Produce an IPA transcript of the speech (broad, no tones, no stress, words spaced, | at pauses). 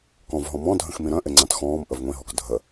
kɔ̃v ɦɔ̃mɔ̃dʱə̃x mĩɾœ̃ʔɪ ŋ͡ǀãtxɔ̃ːm ʔəvŋʷĩɦɔk dʱə